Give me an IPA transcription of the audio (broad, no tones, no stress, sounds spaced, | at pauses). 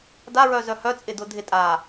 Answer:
d a ɹ œ z œ h œ t͡sʼ ɪ d ʊ dʱ ɪ tʼ a